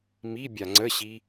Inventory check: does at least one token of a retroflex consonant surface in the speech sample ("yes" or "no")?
no